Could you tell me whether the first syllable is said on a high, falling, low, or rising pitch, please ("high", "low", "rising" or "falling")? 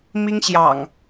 high